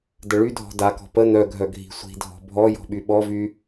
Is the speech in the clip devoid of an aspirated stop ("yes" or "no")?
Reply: yes